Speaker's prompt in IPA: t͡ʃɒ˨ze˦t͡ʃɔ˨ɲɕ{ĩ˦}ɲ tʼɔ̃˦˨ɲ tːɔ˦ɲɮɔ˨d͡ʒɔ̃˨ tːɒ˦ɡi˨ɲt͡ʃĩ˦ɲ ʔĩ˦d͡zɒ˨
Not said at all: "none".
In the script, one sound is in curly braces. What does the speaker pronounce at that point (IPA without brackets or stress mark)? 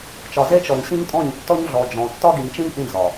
ĩ˦